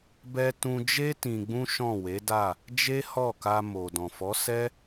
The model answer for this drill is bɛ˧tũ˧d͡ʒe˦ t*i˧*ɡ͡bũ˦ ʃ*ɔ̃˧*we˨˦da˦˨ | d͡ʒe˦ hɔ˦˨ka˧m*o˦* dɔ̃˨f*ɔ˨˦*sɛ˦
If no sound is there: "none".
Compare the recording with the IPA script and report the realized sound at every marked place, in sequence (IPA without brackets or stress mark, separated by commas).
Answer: ĩ˧, ɔ̃˦˨, o˨, ɔ˨˦